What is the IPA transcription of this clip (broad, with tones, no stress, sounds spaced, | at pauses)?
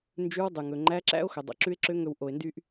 n d͡ʒ ʉ˧˥ w dˤ ʉ˩ ŋ ɵ˩ ŋ͡ǃ æ˧˥ ǁ æ̰˥ o̯ x ɵ˩ dˤ o̰˩ ǁ ʉ˧˥ e̯ ǁ ø˧˥ ŋ ɵ˧ w ʔ o˩ e̯ n d y˧ ʔ